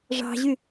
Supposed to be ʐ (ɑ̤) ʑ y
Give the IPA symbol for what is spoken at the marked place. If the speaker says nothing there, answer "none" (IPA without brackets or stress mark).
ɑ̤